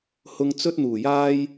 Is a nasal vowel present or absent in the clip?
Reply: absent